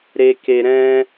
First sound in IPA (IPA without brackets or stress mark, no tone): ɾ